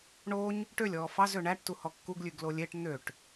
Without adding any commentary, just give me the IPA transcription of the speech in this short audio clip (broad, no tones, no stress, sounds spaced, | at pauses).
ɳ o ɲ | ʈ ø lʲ ɔː f ɑ z ø ɳ æ ʈ t u h ɔ kː u ɡ lʲ ʉ ɡ l o lʲ e ʈ n̪ ø ʈ